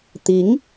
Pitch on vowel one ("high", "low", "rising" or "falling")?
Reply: rising